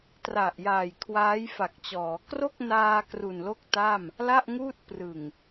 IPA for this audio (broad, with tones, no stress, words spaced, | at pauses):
tra˨˩ʔjaː˨˩j kʰwaː˦˥jfa˨˩k̚t͡ɕɔː˩˦ kro˥˩k̚naː˧ kru˨˩nlo˥˩k̚ta˥˩m | la˥˩ʔŋuː˥˩t̚ prɯ˨˩ŋ